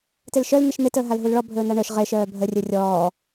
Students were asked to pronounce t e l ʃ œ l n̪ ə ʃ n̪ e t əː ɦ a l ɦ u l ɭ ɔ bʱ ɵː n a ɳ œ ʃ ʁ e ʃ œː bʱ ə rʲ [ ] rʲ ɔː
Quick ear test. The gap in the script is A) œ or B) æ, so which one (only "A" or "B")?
A